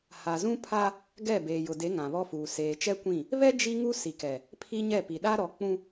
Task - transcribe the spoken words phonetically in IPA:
ha˨zũ˦pʰa˦ | ɡɛ˦˨ beː˨jʊ˨de˨˦ ŋã˨βɔ˦fuː˨ seː˨t͡ʃɛ˦kʷĩ˦˨ | βɛ˦ d͡ʒi˦ŋu˦ si˨kɛ˨ | pʰi˦ɲɛ˦˨pi˨ ɗa˦ɾɔ˨˦k͡pũ˦

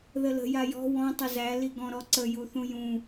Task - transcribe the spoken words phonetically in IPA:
ðələ̤ jajɔ̤ wɔ̃ tˤəzæ liɡɔ̃ɾɔǀə juθũjũ

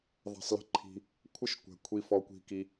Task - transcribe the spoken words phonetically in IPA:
ðˤɛ̤˧sˤlə̤˦ǃʰi̤˧ | kʷʰə˦˨ʃkʷɛ̤˨ kʷʰi˧fɔ˧kʷi̤˧ki˧

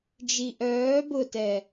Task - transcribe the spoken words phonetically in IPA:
d͡ʒiʔœː bʊtɛ

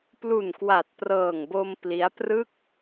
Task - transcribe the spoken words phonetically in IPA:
plu˨˩nkwa˨˩t̚prɤː˨˩ŋbo˧m pli˦˥a̯ prɯ˥˩k̚

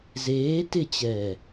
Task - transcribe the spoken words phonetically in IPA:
zeː tɪt͡ɕɛː

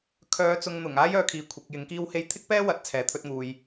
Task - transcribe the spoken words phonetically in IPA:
kʰœː˨˧t͡sʊ˨ŋn̪ʊ˨˩ŋ aː˥jœː˨˧kʰiː˨ kʷʰɪ˨˥k̚ jɪ˨˥ŋkiː˥whe˥j t̪ʰɪ˥k̚pɛː˥ wɐ˨˥t̚t͡sʰɛː˨t̪ʰɵ˧t̚ŋuː˨j

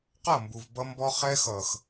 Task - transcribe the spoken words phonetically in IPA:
qʌ˦˨mbu˨v bʌ˦mbɔ˦ χɛ˦xʌ˨x

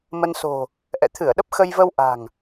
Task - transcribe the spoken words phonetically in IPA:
mə˧nso̤˨˩ | ʔɛ̰˧˨t̪ʰɨ˧˩ə̯ɗə˦˥p̚ xə˧jvə˧w ʔa̤˨˩ŋ

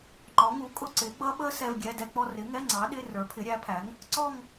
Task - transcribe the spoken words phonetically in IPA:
ŋ͡ǃɔ˨˥ŋu˨˥kʼʊ˥˧ ǀɪ˨˥ɡ͡bʌ˦˥ ɓə˦˥ sɛ˧˥˧vɡʲɛ˧˥˧dɛ˥˧k͡pɔ˥˧ rɪ˨˥ŋɛ˧˥˧ ŋ͡ǀɑ˨˥ ɗɪ˧˥˧ rə˞˨˥pʰɪ˨˥ɾʲæ˨˥pʰæ˨˥ŋ | ǀɔ˥˧ŋ

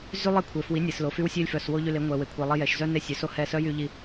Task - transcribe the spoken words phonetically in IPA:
zy˦ lˠe˦kʷʰe˨ fwi˨˦nʲe˨slo˨ fy˧wsʲœ˧lʲfœ˨s wo˦ʎy˧le˨˦ ŋʷɛ˨we˨ kʷʰi˨ lˠi˧jɛ˨ʃzœ˦ ne˦sʲœ˨˦so˦ hɛ˦˨ sœ˦jy˧ʎi˧

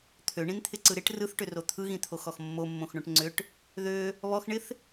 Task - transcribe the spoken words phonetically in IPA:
t̪ʰøɳĩnt̪ʰɪǀɯ ɾɪʈ rɯθʈʏro t̪ʰɯɣĩt̪ʰoxɔx mːomːõxɳõʈ ŋ͡ǀʏʈ | ðø | βɔxɳɪθ

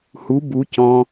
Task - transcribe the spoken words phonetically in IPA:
hu bu cɔ̃

